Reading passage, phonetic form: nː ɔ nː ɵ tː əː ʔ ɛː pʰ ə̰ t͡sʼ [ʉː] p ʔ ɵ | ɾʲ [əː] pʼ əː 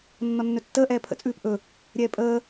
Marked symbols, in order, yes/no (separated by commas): yes, no